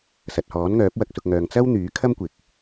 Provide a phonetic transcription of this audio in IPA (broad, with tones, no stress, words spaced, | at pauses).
sɐ˨t̚hɔː˨˥nŋœː˨˥p̚ wɐ˧k̚sʊ˨k̚ŋœː˨ŋ t͡sɐ˥w n̪yː˨˥kʰɐ˥mkʷɪ˨˥k̚